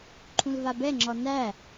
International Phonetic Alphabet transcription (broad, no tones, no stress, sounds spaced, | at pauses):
ǃʰ ũ l v a b ɛ ŋ͡ǁ ɔ n æ